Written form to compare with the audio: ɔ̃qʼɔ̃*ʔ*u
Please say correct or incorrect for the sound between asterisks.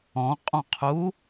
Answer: incorrect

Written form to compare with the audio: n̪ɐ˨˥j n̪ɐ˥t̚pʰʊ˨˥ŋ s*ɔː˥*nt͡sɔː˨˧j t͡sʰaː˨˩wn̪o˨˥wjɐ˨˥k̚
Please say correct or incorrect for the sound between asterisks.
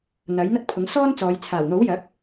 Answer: correct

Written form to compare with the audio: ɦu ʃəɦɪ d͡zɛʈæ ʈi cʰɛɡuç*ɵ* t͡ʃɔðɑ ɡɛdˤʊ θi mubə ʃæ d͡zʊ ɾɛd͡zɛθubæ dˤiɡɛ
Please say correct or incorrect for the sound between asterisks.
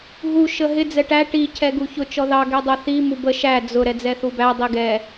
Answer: incorrect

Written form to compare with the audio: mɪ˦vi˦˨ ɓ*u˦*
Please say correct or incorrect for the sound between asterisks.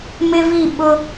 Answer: incorrect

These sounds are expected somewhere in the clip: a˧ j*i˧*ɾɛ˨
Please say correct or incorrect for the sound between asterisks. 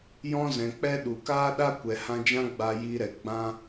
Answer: correct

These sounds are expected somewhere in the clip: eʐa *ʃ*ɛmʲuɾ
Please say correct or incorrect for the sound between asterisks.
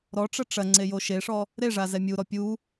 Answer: incorrect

